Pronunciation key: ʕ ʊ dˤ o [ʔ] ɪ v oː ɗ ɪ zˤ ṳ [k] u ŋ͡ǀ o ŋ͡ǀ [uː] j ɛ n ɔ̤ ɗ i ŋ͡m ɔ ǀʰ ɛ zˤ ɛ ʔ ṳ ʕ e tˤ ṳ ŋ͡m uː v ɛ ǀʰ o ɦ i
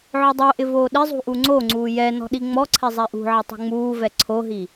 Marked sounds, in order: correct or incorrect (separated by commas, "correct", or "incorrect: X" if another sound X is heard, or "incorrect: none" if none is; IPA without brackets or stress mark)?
correct, incorrect: ʔ, correct